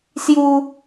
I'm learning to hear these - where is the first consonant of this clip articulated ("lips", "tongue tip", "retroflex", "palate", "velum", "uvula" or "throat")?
tongue tip